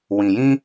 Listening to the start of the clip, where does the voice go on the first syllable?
low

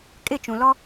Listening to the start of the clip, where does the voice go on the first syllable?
falling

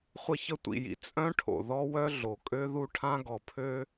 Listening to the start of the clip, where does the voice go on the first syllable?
falling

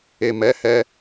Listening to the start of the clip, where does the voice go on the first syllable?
low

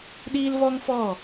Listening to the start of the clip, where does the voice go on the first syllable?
high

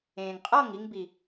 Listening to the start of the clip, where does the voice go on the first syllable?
low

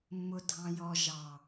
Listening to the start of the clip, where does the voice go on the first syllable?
low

